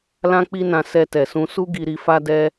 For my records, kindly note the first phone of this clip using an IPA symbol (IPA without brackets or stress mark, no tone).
l